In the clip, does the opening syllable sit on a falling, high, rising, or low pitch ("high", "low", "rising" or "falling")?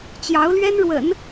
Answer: rising